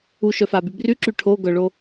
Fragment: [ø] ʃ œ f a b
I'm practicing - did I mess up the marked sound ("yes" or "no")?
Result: yes